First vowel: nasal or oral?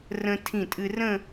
nasal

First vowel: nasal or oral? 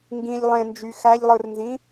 nasal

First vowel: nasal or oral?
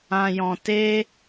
nasal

